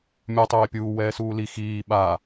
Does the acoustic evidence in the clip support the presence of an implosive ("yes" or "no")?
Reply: yes